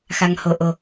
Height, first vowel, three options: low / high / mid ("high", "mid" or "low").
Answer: low